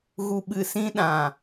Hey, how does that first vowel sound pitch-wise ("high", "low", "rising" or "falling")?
low